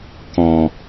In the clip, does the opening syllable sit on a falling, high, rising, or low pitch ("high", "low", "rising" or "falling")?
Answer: low